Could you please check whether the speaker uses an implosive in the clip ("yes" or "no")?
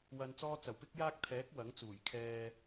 no